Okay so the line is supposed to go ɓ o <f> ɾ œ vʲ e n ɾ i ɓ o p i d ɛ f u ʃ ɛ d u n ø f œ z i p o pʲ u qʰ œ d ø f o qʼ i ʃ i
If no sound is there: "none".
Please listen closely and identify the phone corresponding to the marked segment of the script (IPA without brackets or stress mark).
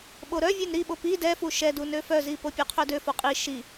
none